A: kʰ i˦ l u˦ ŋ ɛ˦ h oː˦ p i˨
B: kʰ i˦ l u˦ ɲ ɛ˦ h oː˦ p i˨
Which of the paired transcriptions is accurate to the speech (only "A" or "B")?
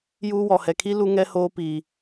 A